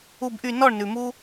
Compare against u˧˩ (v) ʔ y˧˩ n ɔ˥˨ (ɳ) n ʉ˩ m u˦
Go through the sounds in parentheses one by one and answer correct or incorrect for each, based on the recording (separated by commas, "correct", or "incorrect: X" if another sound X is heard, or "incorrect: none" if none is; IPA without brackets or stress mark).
incorrect: b, correct